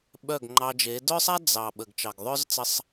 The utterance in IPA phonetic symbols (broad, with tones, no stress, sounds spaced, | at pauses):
ɓ œ˦˨ ɡ ŋ͡ǃ ɑ˧ d͡ʒ e˨˦ d œ˦ sˤ a˦ d͡z ɑ˨ ɓ ə˨ ɡ t͡ʃ ɑ˨ ɡ ðˤ œ˦ z t͡s ə˧ sˤ